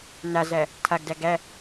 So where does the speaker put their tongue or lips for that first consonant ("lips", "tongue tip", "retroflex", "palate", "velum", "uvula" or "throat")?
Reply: tongue tip